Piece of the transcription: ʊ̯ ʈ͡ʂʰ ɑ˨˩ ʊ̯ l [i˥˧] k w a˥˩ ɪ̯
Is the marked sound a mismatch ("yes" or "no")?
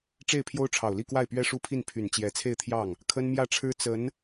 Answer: no